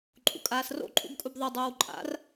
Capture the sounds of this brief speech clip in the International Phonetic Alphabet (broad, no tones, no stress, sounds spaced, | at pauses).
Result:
ǃʼ ṵ kʼ aː s r o̰ ǃʼ ṵ b kʼ u b ðˤ œ dˤ oː w ǃʼ a̰ r